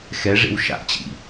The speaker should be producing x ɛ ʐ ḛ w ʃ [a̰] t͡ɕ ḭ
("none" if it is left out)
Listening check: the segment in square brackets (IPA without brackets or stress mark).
a̰